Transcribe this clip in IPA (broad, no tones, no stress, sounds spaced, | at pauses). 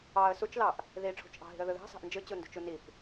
ɑ ə̯ s u t͡ʃ l ɑ ʔ | ð i ʈ͡ʂʰ ṳ t͡ʃ ʔ ɑ̤ ɦ i̤ ə̯ ð ɯ ð ɑ̤ s ɑ̤ ʔ n d͡ʒ ɯ t͡ɕ u n d ṳ t͡ʃ u n i p